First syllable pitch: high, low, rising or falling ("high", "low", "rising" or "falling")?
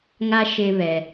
high